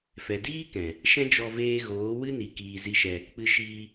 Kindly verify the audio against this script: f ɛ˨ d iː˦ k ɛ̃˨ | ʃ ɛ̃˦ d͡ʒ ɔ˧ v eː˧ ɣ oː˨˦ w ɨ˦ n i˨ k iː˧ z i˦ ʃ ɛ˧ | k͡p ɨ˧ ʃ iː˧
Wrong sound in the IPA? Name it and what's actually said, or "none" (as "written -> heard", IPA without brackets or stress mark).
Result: none